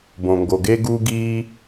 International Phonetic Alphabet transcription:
b õ˨ ŋ ɡ o˨ ɡ e˦ ɡ u˧ ɡ i˧

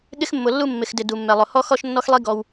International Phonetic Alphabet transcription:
ɠ ɪ˦ x mː ʊ˨ lː u˦ mː ɪ˨ x d ɪ˨ d u˨ mː ɛ˨ lˠ ʊ˨ h ɔ˦ x ɔ˦ ʃ nː ɔ˦ x lˠ i˦ ɡ ɔ˦ w

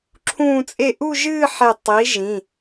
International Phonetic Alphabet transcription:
ǁʰ ũː˥˧ t͡sʼ e˥˧ ʔ u˥˧ ʒ ɨː˥˧ ħ e˧˩ tˤ i˩˧ ʒ ĩ˩˧˩

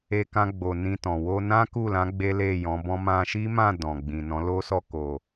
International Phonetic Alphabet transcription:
e˧ k ã˧ ɡ͡b o˨ n ĩ˧ t ɔ̃˨ w o˧ n ã˦ k u˦˨ l ã˨˦ ɡ͡b e˦ l e˦˨ j ɔ̃˨˦ b ɔ̃˦ m ã˧ ʃ i˦ m ã˦˨ d ɔ̃˨ ɡ͡b ĩ˨ n ɔ̃˨˦ l o˦ s ɔ˦˨ k o˨

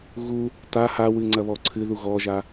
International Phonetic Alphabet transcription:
ɣ u | t a h a w ɨ ŋ͡ǀ ɐ β ɔ ǀʰ ɨ ð u ɣ ɔ ʒ a

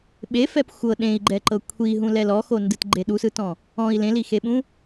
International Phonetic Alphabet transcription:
ɓ e f ɛ p xʷ ɤ ɗ ẽ i̯ ɡ͡ǃ ɛ ǃ ɤ kʷʰ i ɦ ũ l ɛ l ɔ x o n d ɯ t ɡ͡ǃ e ɗ u s ɯ t ɔ̃ | ɔ̃ i̯ l ẽ l i x e ɓ ũ

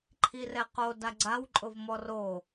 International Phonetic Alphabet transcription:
ǃʰ i r ɛ q o d a ɡ͡ǀ a w ǃʼ ʊ v m ɔ r o

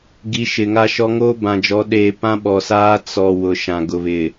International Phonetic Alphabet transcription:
ɡ i˨˦ ʃ ɪ˨ ŋ a˦ ʃ ɔ˦ ŋ oː˦ b ã˨ d͡ʒ ɔ˨˦ ɗ eː˨ p ã˦ ɓ ɔ˨ s aː˦ t͡s ɔ˨ w ʊ˨ ʃ ã˨ ɡ ʊ˨ β ɪ˨

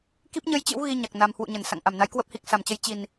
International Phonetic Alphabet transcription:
k i˦˥ p̚ ɲ ə˧ j t͡ɕ ɨ̰˧˥ w ɣ i˧ ɲ a˨˩ k̚ n a˨˩ m h w ṵ˧˨ ɲ ə˧˩ n s a̰˧˨ ŋ ʔ a˧˩ m n a˨˦ j k w ə˦˥ p̚ h i˨˩ k̚ s a˧˩ m t͡ɕ ə˨˦ j t͡ɕ i˨˩ n

